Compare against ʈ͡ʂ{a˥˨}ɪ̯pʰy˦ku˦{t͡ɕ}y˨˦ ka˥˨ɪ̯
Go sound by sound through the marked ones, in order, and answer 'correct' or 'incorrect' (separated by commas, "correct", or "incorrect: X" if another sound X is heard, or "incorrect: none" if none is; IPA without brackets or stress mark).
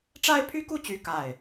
incorrect: a˦, correct